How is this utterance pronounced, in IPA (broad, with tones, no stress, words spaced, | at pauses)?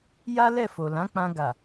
ja˦lɛ˦˨fo˨ lã˨˦k͡pã˧ɡa˨